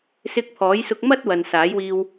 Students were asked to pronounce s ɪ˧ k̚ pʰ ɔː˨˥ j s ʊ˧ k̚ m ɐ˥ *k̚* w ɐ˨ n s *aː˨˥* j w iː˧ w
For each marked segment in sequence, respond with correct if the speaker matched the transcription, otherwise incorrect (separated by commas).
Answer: incorrect, correct